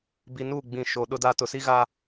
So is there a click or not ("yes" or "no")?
no